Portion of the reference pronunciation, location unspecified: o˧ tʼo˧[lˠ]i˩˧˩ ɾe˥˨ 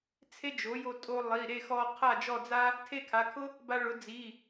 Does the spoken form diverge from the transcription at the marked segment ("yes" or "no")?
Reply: no